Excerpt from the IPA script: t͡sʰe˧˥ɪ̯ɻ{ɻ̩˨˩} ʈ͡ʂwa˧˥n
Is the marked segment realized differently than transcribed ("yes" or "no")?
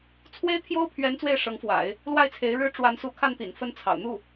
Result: yes